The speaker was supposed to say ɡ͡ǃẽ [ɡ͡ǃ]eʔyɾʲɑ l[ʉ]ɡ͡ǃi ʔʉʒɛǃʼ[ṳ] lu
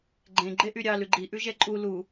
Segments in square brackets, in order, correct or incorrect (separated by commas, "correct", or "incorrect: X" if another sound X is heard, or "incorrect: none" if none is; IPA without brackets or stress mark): correct, correct, incorrect: u